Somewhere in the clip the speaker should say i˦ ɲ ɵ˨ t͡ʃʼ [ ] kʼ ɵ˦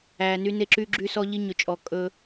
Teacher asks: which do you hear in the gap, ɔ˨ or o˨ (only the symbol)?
ɔ˨